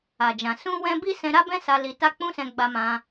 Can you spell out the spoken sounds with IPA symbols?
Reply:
a˨d͡ʒã˨ sũ˧wɛ̃˧ bi˦ sɛ̃˧ɾa˦bɛ̃˦sa˧ li˧ta˦k͡pũ˦sɛ̃˧ ɡ͡ba˧mã˧

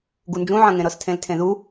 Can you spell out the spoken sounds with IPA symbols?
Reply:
ɡund͡ʒũʕɐ̃ŋẽ ɾɤstʰẽltʰẽðu

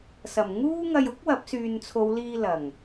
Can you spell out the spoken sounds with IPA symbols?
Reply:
sɐ˨˩mŋuː˥ ŋɐ˧jʊ˥k̚wɐ˨˥p̚ syː˨nt͡sʰo˨˧w liː˧lɐ˨˩ŋ

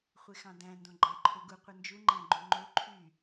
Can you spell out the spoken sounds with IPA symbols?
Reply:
χʷexɑ̃dæ̃ ndõɡ͡ǃæǃʰøɡu qʷɯnd͡ʒu ŋ͡ǃæ̃ɡ͡ǃũŋ͡ǃo ǃʰy

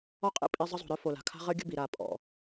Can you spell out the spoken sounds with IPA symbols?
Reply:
ɔ˦qʼḭ˦˨ pʼi˧ zˤə˦zˤo̤˨ɾœ˦ fo˨la̤˨ kʰa̤˦ʁə˦ɡʲə̤˦bi˨ ɾa˨ pʼɔ̰˨

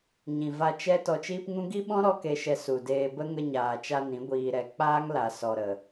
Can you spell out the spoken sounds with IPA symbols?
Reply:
ɲĩ˨va˧ t͡ʃɛ˧ tɔ˧t͡ʃiː˦pŋũ˦ ɡi˦ɓɔ̃˦ ɾɔ˦ke˧ʃɛ˧ su˨deː˧bə˦ ŋə˧ɲaː˨t͡ʃa˧ nĩ˨˦ ɡʷiː˧ɾɛ˧ k͡paː˦ŋla˨ sɔ˨ɾə˨

